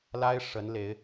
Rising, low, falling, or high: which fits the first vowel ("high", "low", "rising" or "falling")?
high